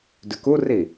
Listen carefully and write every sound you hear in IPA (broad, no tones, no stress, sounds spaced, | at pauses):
d ʉ k u r i